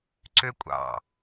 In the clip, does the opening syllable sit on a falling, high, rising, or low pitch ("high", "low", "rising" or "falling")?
high